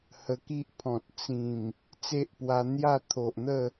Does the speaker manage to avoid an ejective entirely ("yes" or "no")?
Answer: yes